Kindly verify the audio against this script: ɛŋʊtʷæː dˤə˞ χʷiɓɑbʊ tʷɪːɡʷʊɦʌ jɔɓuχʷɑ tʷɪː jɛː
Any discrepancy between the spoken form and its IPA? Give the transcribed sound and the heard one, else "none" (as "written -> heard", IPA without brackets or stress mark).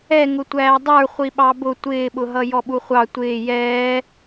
ɡʷ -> ɓ